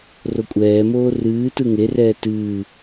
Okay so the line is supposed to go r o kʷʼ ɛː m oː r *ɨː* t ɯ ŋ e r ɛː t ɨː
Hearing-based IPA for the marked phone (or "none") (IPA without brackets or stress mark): ɨː